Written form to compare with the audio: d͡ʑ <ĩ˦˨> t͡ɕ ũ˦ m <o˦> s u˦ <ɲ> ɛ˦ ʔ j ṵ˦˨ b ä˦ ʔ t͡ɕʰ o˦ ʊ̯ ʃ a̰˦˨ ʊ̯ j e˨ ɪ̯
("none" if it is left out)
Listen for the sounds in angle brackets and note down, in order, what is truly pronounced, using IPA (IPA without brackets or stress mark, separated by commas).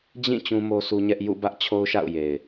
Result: ĩ˦˨, o˦, ɲ